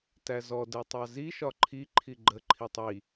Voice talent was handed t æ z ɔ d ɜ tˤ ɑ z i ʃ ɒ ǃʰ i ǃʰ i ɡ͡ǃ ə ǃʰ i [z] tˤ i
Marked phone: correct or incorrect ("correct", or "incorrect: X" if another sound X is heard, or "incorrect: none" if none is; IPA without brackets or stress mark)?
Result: incorrect: none